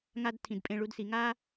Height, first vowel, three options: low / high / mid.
low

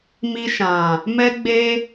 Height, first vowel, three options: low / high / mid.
high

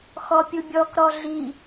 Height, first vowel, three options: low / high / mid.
mid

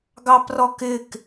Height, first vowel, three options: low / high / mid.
low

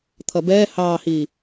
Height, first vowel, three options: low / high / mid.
mid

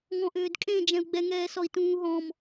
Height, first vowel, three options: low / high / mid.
mid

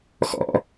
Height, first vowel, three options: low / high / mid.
mid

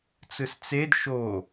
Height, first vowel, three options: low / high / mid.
high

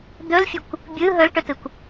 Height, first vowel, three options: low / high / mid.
mid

